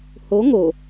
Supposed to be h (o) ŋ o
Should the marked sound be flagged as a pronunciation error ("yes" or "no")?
no